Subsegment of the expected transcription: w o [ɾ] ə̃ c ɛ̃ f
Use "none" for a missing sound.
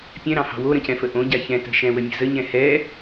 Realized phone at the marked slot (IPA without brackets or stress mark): ɾ